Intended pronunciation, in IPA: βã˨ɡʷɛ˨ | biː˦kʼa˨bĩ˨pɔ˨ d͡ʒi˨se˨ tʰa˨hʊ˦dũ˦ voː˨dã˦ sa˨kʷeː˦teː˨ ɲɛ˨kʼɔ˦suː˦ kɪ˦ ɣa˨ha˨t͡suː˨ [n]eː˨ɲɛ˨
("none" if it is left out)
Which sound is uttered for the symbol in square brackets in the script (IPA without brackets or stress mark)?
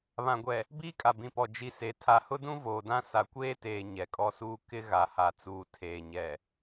tʰ